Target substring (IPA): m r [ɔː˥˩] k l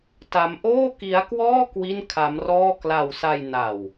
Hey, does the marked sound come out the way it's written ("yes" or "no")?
yes